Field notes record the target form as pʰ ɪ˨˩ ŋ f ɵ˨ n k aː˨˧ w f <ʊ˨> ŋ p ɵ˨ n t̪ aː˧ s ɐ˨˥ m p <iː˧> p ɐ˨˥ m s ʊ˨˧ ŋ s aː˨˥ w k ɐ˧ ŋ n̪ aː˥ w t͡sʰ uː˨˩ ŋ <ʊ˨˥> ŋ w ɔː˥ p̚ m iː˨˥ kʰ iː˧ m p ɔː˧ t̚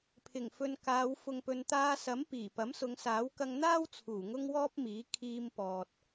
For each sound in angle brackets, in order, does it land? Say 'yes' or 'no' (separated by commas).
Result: yes, no, no